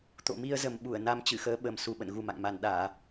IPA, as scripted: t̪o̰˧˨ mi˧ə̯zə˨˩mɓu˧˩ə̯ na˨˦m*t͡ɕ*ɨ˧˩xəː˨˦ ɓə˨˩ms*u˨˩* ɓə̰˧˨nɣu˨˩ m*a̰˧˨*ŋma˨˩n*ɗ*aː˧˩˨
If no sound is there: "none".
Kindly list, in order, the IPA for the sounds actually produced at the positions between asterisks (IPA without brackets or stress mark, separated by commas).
t͡ɕ, u˨˩, a̰˧˨, ɗ